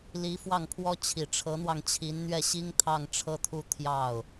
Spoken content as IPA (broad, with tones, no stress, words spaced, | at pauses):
li˧˥fwɑ˥˩ŋpʰwɔ˥ t͡ɕʰi˨˩ʈ͡ʂʰɤ˧˥n̪wɑ˧ŋt͡ɕʰi˧˥n n̪ɥɛ˥˩ɕi˥ŋt̪ʰɑ˥˧ŋ ʈ͡ʂʰɤ˥˧t̪ʰu˥˧ t̪ʰjɑ˥˩ʊ̯